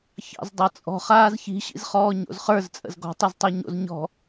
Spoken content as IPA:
ç ɑ̰ z dˤ ɤ t͡sʼ ɔ̤ χ aː z ç i̤ ɕ ḭ z χ ɔː ɲ o̰ z χ ə˞ z t͡sʼ ə̰ z ɡ ɔ̤ tˤ i z tˤ œ ɲ o̰ z ɲ ɔ̤

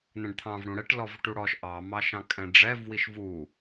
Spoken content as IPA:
n̪ ɛ̃ ɖ t̪ʰ ɑ̃ v ɽ ũ ɽ ɛ ʈ l ɔ v ʈ u ɽ ɔ ʃ ʔ ɑ m ɑ ʃ ɑ̃ kʼ ɛ̃ ɖ͡ʐ ɛ v w i ʃ v u

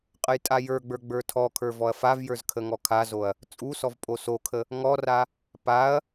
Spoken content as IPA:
qʼ ə j tʼ a j ə˞ ɡ͡b ə˞ ɡ͡b ə˞ tʰ ɔ kʰ ə˞ v ɔ ɐ̯ f a v j ə˞ z kʰ ə ŋ ɔ kʰ a z o ɐ̯ | t͡sʼ u s ɔ v pʼ o s o kʰ ə | ŋ ɔ r a | p a ɐ̯

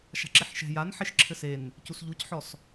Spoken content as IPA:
ʃ a̤ ǁ i ħ ʃ ɛ̤ j a n ħ e ʃ ǁʰ ɘ s e n | c u s ʎ u c ħ ɔ s

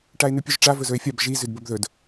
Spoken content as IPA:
ʈ a e̯ n̪ ʉ pʲ ʉ ʒ ʈ͡ʂ a v ɵ z ɵ e̯ fʲ a b ʒ i z ʉ d b ɵ b ð ɵ d

